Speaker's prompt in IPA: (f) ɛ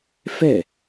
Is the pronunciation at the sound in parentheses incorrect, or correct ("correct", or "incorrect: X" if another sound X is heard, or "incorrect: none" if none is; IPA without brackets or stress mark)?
correct